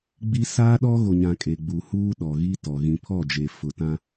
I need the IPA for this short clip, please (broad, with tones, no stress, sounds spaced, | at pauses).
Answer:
ɡ͡b i˦ s aː˦ ɗ ɔ˦ ɣ o˨ ɲ ã˨ kʼ e˨ ɡ͡b u˨ h uː˦ ɗ ɔ˨ ɣ i˦ t ɔ˨ ɣ ĩ˨ pʰ ɔ˦˨ d͡ʒ e˨ f ʊ˨ t ã˦